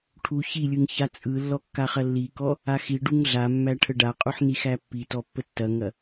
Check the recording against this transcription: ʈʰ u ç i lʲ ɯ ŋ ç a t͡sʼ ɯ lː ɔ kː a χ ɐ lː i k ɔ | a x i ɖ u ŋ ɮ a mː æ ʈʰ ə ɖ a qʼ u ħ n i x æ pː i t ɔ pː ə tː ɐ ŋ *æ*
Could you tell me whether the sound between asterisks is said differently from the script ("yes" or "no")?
yes